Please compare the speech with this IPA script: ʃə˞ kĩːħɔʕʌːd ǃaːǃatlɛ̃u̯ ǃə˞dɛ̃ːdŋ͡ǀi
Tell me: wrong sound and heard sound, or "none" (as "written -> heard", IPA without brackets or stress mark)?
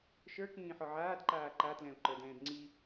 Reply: ʌː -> aː